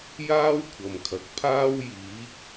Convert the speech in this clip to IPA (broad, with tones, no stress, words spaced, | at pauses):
jaː˥wkʷʰɐ˨mkʰɐ˨k̚ pʰaː˥wjiː˨˥k̚